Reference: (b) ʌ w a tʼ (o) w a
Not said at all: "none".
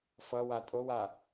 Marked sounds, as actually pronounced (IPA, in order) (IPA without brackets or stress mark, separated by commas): f, o